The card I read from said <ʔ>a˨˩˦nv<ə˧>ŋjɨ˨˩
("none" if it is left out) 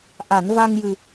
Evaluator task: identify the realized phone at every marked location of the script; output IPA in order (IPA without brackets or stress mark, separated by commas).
ʔ, a˧